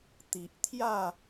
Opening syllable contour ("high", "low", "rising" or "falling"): low